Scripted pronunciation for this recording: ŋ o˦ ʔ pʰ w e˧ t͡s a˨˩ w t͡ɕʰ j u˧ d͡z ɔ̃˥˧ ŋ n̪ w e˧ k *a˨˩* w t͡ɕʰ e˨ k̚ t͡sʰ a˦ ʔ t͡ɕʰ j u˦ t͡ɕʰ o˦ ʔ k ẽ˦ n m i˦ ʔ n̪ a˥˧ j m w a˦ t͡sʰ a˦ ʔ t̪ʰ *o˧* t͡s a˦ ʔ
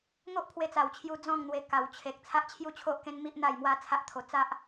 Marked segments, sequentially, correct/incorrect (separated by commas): correct, correct